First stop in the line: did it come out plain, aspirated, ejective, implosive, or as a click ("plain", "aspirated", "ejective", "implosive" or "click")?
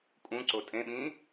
ejective